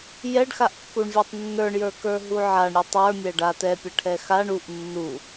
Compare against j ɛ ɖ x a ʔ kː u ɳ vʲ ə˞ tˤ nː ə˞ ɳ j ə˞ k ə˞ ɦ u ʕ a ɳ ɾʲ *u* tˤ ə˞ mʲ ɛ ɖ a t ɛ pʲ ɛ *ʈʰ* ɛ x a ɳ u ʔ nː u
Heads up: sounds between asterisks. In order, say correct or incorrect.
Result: correct, correct

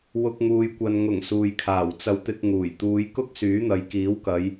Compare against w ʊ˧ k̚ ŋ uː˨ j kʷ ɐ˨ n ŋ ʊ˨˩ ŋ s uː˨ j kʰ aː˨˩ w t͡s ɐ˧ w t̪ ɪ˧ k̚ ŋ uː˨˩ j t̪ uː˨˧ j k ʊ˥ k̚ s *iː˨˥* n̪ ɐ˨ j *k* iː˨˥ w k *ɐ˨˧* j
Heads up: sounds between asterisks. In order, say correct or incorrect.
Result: incorrect, correct, correct

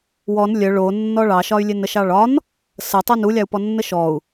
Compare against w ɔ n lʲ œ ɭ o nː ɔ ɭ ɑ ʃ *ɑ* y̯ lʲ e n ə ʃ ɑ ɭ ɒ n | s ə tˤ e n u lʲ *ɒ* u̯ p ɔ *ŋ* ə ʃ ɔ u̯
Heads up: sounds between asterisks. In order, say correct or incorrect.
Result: incorrect, incorrect, incorrect

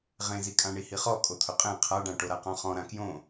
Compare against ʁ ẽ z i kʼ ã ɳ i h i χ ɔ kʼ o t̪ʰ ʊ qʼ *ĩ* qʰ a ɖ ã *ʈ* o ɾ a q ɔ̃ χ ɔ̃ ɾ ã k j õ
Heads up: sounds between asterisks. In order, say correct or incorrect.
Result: incorrect, correct

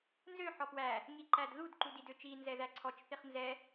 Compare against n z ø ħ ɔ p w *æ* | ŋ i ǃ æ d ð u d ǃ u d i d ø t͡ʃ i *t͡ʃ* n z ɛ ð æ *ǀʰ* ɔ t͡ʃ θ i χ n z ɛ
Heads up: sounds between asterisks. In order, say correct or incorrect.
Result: correct, incorrect, correct

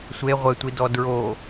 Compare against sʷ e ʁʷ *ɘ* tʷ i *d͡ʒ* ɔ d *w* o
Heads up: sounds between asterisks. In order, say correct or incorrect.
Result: correct, incorrect, incorrect

